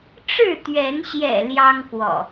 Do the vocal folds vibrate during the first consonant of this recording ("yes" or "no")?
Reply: no